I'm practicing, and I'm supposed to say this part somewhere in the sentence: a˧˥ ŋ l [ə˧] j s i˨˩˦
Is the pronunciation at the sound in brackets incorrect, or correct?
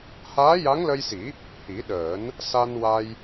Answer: correct